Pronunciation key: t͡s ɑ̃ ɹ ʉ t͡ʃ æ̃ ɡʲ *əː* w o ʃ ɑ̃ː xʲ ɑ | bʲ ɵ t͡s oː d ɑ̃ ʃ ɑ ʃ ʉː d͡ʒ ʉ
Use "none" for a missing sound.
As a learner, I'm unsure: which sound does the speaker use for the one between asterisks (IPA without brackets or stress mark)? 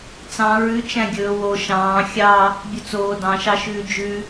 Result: ɵː